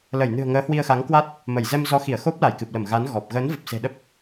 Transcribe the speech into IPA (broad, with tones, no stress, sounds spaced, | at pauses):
l ə˧˩ j n ɨ̤˨˩ ə̯ ŋ əː˨˦ h w i˧ ə̯ x a˨˦ ŋ k w a˦˥ t̚ | m ə˧˩ j z ɛ˧ m z ɔ˨˦ x i˧˩ ə̯ x o˦˥ p̚ l a˧˩ j k ɨ˨˩ p̚ l ə˧˩ m ɣ a˨˦ n ɣ ɔ˨˩ p̚ ɣ əː˨˦ n v ə˨˩ p̚ s e̤˨˩ ɗ ə˦˥ p̚